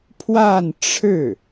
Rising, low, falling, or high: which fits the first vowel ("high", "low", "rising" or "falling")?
falling